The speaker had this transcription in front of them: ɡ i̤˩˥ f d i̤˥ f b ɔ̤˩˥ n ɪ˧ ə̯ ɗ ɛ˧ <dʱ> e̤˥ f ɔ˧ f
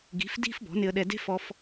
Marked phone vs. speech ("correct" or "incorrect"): incorrect